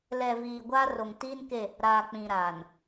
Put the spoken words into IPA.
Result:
lɛ˨viː˨ ɡʷaː˦ro˨ŋ tiː˦nke˦˨ | ɾaː˨k͡pĩ˨ɾaː˨n

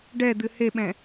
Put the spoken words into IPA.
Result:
ɖɛd̪ɨ heɓɛ̃

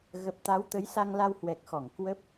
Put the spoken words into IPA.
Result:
ɣə˨˩p̚t̪a˨˦wt̪ə˨˦j sa˧ŋla˧whwɛ˨˩k̚xɔ˧˩ŋ kwə˦˥p̚

